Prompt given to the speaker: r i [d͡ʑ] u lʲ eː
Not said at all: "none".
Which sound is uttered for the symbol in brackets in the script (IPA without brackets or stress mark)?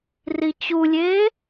t͡ɕ